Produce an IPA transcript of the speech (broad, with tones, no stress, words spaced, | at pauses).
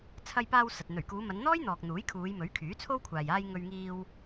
t͡sʰɐ˧jpaː˧w sɐ˨t̚ n̪ɵ˨˩ɥkuː˨˧mɐ˨˧nn̪ɔː˥j n̪ɔː˨k̚n̪uː˨˥jkʰuː˨˧jmɵ˨˥ɥ kʰyː˨˥t͡sʰo˥wkʷʰaː˨j aː˧j ŋɵ˧ɥŋiː˧w